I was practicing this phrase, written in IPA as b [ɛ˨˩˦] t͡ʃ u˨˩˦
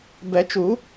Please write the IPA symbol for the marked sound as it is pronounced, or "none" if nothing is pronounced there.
ɛ˨˩˦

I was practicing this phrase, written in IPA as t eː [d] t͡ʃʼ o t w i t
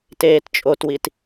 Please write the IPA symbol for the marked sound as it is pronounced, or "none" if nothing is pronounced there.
t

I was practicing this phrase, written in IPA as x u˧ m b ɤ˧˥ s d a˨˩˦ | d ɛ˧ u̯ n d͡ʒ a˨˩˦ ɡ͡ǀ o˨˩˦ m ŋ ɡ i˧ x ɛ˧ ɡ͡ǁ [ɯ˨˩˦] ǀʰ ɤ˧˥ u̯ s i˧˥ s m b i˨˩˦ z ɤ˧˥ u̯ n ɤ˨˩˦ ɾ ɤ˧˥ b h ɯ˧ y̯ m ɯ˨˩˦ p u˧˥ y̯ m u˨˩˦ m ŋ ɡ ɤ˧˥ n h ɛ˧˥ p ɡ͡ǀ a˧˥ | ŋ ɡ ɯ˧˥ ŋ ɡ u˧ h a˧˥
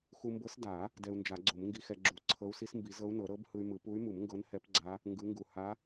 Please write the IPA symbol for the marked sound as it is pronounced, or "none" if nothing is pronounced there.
u˨˩˦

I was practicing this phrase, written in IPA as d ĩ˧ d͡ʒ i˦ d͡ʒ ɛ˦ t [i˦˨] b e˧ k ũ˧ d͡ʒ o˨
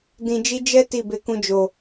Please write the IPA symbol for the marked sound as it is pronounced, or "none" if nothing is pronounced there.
i˦˨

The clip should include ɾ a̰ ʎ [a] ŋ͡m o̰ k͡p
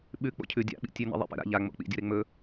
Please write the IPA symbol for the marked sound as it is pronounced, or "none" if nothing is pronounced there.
a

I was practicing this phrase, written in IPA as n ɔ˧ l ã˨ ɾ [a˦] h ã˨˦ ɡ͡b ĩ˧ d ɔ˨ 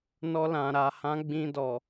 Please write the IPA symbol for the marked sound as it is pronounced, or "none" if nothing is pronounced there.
a˨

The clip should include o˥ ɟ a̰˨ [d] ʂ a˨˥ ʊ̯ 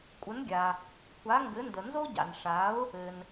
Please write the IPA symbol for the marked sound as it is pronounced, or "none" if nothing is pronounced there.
n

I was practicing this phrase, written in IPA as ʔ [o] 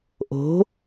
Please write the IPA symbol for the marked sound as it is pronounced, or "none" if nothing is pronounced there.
o̤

